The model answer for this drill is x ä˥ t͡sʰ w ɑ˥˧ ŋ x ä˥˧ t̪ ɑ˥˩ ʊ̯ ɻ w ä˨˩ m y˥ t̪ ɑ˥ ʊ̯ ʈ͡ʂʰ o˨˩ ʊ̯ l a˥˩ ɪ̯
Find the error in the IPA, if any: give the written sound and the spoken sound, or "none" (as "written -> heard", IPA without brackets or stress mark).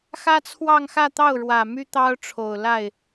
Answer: none